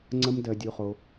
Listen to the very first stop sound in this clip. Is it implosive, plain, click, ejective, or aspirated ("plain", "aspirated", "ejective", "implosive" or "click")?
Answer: click